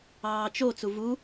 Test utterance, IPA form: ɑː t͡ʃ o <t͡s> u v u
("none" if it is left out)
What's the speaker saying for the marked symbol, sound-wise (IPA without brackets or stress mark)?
t͡s